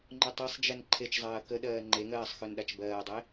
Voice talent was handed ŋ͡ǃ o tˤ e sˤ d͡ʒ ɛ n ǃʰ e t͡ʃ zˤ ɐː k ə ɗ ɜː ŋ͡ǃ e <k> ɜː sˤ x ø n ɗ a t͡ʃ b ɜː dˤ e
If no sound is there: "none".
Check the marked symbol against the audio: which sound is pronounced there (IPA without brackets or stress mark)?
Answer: ŋ